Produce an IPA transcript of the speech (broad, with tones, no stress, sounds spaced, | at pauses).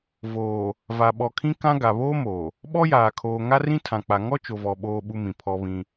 v oː˨ | v a˨ ɓ ɔ˨ kʰ ĩ˦ k ã˦ ɡ a˨ β oː˦ m oː˨ | ɓ ɔ˦ j aː˨ kʰ oː˨ ŋ a˦ r ĩ˦ tʰ ã˨ k͡p a˨ ŋ ɔ˦ t͡ʃ o˨ v ɔ˨ ɓ oː˦ ɓ u˦ m ĩ˨ pʰ ɔ˦ β ĩ˦